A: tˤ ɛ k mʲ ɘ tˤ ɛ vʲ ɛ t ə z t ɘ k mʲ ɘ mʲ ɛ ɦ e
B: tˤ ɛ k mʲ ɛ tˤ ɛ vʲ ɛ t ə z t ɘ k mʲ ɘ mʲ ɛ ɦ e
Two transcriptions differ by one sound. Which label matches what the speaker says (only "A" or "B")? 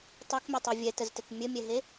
A